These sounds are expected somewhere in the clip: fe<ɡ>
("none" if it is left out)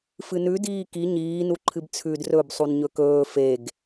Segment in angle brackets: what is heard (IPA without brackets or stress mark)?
ɡ